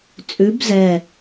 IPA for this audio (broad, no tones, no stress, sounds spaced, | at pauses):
t͡sʼ ʉ b z ɛ